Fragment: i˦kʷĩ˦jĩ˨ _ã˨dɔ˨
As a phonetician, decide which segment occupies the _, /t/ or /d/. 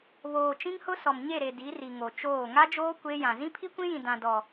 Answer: d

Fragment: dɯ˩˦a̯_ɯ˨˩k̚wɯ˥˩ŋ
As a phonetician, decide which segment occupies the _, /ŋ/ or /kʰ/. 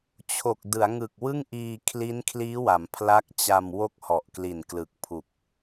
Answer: ŋ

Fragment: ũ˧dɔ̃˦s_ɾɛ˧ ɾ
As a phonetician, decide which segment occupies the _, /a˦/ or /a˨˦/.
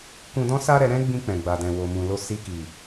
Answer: a˦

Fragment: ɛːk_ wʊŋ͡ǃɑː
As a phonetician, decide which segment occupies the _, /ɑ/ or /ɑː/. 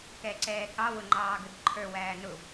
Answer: ɑ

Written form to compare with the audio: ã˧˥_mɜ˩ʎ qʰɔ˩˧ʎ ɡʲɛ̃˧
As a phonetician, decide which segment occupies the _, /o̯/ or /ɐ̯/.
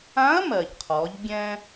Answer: ɐ̯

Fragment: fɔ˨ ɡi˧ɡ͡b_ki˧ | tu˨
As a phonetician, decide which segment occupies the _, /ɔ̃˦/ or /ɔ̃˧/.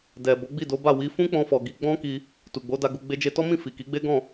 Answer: ɔ̃˦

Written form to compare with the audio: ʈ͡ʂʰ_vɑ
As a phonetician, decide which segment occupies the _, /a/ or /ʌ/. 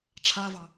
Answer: a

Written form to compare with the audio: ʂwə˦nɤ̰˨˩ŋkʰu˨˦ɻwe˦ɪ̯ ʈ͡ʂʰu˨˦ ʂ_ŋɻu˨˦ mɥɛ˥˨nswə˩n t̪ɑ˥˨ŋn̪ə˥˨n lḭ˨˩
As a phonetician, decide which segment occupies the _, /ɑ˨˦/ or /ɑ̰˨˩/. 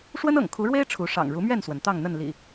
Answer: ɑ̰˨˩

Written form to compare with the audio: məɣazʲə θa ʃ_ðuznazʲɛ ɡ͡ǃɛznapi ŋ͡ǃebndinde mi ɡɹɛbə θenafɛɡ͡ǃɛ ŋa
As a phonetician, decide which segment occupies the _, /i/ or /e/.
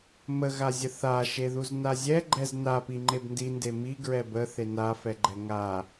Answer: e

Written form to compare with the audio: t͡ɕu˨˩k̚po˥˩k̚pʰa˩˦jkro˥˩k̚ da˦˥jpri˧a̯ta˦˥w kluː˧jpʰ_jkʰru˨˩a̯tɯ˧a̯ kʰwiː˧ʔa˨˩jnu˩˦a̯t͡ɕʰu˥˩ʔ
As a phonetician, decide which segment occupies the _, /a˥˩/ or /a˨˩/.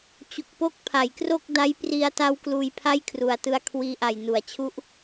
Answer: a˥˩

